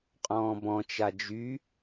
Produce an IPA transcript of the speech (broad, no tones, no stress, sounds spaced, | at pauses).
qʼ ɔ̃ː b ɔ̃ t͡ʃ a d͡ʒ y